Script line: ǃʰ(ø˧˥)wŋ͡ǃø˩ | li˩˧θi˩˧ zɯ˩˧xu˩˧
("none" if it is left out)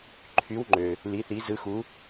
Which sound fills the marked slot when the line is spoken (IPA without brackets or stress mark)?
y˧˥